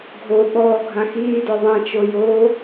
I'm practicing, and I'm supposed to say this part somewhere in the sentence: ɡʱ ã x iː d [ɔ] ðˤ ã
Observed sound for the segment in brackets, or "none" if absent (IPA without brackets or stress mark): ɔ